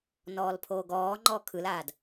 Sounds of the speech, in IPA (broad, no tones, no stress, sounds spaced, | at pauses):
n ɔː l pʰ oː ɡ ɔː ŋ͡ǃ ɔː kʰ ɯ l aː d